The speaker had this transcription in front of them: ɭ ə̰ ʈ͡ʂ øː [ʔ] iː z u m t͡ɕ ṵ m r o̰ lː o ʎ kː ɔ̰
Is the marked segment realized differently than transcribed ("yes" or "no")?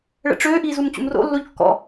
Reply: no